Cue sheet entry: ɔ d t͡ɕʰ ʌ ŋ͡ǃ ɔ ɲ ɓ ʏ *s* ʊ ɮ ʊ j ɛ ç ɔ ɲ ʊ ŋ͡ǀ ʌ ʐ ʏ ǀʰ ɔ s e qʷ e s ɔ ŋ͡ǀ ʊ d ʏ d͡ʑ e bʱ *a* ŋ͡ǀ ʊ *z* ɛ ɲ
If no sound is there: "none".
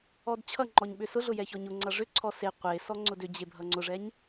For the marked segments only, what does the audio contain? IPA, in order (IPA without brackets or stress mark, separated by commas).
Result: s, ʌ, ʐ